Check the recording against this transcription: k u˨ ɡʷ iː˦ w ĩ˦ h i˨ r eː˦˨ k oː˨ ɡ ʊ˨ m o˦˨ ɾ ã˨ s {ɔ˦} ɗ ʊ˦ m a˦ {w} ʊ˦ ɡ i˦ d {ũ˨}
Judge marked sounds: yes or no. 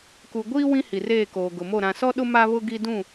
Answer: yes, no, no

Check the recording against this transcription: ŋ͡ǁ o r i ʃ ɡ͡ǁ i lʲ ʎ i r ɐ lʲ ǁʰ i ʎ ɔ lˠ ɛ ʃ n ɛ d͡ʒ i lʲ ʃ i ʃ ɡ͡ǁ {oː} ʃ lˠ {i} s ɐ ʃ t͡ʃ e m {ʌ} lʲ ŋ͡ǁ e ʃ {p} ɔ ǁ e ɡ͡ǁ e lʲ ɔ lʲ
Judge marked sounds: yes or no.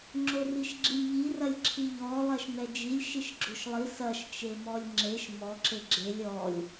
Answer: no, yes, no, no

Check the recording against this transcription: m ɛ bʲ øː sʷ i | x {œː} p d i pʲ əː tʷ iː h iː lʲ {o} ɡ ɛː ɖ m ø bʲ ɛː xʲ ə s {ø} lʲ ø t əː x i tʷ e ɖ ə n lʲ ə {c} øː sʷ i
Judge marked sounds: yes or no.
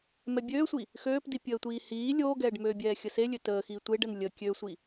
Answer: no, no, no, no

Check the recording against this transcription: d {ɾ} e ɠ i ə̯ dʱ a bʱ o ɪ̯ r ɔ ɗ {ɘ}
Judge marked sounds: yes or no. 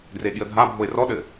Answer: no, yes

